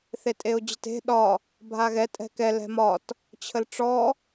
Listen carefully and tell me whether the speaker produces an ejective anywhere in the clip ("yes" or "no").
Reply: yes